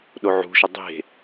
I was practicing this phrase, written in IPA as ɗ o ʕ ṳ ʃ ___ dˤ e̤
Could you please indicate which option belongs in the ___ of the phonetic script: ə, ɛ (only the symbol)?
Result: ə